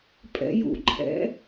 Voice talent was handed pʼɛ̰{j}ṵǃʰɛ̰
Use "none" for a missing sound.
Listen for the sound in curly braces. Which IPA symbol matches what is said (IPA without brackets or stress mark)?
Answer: j